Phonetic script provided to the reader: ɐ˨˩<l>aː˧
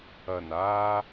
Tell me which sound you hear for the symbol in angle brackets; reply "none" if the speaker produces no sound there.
n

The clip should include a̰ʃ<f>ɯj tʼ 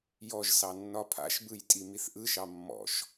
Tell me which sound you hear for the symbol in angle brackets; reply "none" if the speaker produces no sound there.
b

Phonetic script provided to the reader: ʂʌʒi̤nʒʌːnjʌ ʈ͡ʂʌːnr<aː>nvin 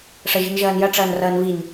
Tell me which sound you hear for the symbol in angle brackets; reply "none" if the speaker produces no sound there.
ʌː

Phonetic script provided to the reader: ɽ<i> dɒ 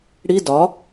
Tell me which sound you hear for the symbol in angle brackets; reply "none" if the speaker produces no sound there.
i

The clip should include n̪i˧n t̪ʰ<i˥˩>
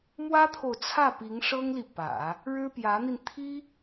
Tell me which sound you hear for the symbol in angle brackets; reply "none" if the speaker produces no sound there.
i˥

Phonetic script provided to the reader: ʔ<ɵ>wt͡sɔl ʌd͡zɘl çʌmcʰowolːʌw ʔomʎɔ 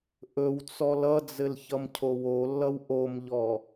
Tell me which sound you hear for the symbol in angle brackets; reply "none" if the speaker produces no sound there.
ɵ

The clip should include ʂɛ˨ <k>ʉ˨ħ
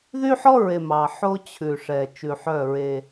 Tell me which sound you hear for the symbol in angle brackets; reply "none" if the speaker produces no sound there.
t͡ʃ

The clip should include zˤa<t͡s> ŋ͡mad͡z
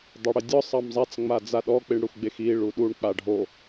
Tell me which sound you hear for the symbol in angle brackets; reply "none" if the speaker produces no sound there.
t͡s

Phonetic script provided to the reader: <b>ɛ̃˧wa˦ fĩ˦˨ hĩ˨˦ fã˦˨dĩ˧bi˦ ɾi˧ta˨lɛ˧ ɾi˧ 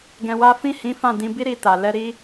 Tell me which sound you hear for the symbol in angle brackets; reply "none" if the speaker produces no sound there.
ɡ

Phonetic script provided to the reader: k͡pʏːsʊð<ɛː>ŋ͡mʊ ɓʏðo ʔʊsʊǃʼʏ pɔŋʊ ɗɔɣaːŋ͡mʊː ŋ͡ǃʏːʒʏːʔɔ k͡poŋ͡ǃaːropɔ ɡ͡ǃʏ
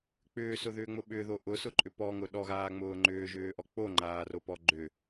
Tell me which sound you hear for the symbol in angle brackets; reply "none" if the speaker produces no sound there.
ʏː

